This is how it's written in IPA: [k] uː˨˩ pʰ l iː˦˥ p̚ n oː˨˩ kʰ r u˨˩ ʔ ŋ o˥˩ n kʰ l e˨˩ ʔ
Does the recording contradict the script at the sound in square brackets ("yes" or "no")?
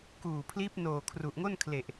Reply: no